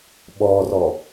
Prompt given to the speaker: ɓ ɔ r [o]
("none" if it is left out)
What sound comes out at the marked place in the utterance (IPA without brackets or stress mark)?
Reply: ɔ